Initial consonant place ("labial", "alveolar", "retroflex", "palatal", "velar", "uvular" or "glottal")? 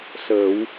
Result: alveolar